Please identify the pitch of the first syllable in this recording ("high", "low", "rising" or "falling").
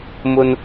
high